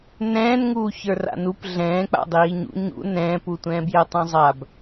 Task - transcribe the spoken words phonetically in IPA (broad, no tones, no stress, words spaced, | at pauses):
nɛ̃ːnŋuː çə˞ra̰nup ɮɛ̃ː k͡pa̰dˤiːɲṵ ɲṵ nɛ̃ːputʷɛ̃ː bjɛtˤæ̃zˤab